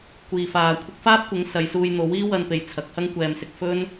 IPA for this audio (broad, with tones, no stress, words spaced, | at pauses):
kʷiː˨faː˨ kʷʰɪ˧k̚faː˥p̚kʷɪ˨˥ŋ sɐ˨˧jsuː˧jn̪o˨˥w iː˥wɐ˧npe˨j t͡sʰɐ˨˥k̚hɐ˥ŋkʷɛː˧msɪ˧k̚ fɵ˥n